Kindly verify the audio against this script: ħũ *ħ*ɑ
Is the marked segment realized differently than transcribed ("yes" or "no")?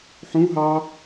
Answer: yes